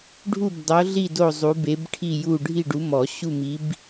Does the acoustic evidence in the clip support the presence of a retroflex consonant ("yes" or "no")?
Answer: yes